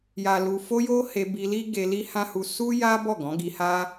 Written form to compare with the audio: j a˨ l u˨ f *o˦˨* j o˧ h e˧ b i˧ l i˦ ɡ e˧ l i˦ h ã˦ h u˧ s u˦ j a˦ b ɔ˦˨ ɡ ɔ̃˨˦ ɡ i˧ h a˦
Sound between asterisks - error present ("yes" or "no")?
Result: yes